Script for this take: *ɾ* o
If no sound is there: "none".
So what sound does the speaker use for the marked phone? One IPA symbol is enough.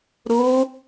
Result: ɾ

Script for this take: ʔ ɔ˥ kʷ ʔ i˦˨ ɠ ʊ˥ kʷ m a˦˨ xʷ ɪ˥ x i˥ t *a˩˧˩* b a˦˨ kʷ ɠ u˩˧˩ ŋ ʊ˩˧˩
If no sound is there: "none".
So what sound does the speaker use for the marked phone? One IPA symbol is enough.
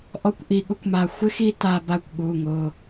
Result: a˦˨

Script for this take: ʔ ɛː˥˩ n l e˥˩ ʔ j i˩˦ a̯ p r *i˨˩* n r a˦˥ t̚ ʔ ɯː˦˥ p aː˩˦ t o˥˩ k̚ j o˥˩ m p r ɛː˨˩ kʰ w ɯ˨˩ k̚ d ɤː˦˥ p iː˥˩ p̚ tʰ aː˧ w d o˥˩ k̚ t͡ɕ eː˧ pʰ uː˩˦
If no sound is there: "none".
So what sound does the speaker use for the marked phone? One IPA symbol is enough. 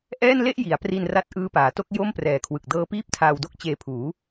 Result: i˧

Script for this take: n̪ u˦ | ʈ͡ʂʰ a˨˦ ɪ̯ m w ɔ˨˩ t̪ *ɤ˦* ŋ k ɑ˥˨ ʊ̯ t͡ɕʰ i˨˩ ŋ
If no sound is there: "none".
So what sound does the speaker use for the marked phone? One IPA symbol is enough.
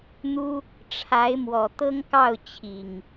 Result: ɤ˦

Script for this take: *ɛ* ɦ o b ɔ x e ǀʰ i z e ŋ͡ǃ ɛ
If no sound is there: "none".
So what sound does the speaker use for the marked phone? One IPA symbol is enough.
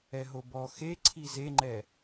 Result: ɛ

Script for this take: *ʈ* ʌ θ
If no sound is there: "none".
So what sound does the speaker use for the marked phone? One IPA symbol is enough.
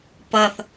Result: p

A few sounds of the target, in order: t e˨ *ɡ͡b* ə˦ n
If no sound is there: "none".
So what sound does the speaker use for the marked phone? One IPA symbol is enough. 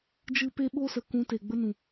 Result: ɡ͡b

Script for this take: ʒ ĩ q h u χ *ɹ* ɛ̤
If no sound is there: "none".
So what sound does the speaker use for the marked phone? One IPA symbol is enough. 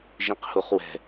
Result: w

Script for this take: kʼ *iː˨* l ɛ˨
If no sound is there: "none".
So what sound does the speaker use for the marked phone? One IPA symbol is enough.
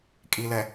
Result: i˨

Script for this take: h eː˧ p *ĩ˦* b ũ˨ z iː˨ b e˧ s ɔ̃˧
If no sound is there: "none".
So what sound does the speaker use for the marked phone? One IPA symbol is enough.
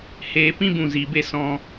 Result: ĩ˦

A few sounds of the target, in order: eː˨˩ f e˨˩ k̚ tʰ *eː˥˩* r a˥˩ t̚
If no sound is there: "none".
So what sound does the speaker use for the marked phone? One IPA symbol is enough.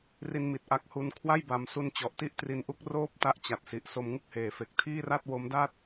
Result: iː˥˩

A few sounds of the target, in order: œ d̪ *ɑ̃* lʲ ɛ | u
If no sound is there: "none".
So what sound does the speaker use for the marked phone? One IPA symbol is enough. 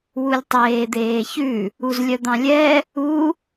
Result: ɑ̃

